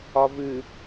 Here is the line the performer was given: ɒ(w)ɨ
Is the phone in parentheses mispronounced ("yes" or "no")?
yes